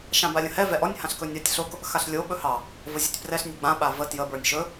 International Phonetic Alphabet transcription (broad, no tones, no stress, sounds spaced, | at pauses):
ʃ ã b a lʲ ə̃ h ɛ v ɛ ʔ ɔ nʲ h ã ɬ k ɵ nʲ a tʲ ɬ o k | x a ɬ lʲ o ɓ ɵ h ɑ | v ə zʲ a tʲ p r ɛ ɬ nʲ ɛ ɡ͡b ã ɓ a v ə t j ə b ə˞ nʲ ʃ ɵ